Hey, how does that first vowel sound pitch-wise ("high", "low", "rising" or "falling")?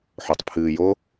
low